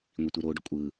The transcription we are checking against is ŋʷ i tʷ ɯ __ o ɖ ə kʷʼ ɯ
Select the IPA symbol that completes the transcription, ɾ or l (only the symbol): ɾ